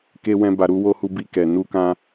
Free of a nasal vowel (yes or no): no